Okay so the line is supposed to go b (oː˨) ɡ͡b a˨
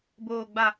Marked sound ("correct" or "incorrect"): correct